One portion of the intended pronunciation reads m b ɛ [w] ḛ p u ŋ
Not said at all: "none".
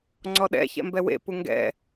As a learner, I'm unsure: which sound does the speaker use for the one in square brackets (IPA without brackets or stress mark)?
w